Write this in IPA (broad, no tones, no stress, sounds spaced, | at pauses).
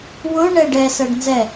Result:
w ʊ ɳ ɛ ɖ ɛ s ɜ ɖ n z ɛ